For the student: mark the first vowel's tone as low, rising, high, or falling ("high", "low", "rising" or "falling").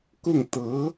falling